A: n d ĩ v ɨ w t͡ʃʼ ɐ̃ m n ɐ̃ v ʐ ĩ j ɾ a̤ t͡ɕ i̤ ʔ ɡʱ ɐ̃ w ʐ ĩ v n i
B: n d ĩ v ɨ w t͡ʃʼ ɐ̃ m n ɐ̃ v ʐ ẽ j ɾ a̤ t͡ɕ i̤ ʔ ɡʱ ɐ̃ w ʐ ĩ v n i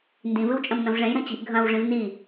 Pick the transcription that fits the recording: B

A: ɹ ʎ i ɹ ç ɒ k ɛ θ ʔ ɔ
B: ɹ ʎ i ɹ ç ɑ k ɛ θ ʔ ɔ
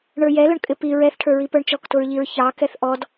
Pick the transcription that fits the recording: B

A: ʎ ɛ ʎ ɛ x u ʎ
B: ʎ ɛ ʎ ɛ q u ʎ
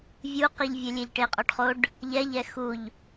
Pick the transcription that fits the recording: A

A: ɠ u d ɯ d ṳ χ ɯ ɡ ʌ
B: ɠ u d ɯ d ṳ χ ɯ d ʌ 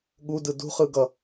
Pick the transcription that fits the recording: A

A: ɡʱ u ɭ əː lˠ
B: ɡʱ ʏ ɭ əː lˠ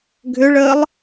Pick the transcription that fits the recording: B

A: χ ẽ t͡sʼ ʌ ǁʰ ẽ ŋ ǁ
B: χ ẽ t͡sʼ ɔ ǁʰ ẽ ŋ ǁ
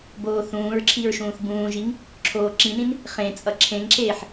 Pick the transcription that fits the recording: A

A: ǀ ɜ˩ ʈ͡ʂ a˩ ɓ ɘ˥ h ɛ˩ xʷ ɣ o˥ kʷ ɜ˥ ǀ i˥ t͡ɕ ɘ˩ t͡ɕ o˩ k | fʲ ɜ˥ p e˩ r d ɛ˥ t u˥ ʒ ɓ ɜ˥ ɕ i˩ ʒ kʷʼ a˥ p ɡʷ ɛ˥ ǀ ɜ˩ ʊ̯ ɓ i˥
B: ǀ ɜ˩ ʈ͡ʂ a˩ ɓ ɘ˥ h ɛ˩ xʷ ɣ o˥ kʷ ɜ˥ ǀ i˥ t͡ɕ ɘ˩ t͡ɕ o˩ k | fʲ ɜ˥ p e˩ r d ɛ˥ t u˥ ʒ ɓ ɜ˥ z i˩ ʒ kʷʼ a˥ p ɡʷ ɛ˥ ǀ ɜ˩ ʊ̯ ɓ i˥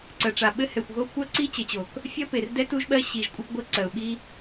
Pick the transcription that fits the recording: A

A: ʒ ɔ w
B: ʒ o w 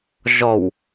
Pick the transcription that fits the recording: A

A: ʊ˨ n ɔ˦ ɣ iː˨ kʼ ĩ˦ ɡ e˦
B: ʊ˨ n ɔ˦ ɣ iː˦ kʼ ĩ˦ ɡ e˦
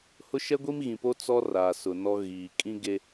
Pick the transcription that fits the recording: A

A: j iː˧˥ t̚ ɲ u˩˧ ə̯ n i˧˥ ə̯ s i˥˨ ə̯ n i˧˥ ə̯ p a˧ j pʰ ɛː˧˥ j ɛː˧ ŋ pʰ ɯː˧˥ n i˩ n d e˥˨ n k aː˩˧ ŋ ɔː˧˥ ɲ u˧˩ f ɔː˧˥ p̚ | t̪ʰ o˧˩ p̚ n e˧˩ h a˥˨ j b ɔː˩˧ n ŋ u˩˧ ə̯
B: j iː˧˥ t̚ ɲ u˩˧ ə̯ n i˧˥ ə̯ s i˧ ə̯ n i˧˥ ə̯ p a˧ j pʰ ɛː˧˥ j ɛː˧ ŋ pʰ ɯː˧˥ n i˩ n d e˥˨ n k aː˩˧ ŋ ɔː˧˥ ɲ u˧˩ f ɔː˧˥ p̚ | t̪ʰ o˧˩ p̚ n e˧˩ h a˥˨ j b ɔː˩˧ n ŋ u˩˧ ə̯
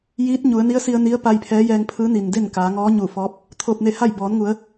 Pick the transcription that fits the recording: B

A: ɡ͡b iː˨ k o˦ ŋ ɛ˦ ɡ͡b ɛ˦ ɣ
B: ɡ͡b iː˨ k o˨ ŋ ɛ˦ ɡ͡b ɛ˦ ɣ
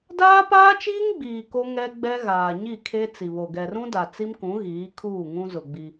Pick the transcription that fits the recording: A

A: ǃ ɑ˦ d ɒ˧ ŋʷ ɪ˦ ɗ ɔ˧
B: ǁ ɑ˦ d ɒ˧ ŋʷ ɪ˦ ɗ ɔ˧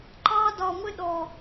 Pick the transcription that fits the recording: A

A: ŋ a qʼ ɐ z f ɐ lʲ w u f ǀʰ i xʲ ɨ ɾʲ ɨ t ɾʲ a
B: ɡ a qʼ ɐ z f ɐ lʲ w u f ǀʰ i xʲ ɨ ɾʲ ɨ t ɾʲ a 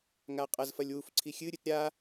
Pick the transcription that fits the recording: A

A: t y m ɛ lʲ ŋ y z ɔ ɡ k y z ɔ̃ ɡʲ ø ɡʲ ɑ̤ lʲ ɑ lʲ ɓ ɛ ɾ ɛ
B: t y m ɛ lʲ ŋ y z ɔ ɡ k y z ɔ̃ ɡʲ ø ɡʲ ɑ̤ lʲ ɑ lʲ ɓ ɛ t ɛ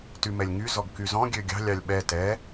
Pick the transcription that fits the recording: B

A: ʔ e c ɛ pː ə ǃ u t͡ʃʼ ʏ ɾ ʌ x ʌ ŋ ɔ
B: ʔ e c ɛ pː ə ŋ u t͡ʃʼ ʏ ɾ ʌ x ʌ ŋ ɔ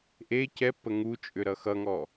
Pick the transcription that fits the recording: B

